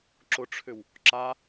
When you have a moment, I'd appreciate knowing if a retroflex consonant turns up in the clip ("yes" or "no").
yes